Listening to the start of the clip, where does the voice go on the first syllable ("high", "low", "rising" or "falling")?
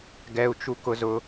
low